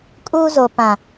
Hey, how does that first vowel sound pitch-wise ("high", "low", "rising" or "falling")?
high